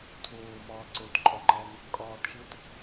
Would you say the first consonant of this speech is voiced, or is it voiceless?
voiceless